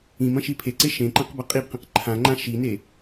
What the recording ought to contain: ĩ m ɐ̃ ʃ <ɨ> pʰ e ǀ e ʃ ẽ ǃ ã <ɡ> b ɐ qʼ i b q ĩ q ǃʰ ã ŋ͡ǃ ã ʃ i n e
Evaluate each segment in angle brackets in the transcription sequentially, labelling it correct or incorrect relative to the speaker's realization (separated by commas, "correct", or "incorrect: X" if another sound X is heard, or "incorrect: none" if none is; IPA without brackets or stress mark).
incorrect: i, incorrect: q